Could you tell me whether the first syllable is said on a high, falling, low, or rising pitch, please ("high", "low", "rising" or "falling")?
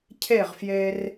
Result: falling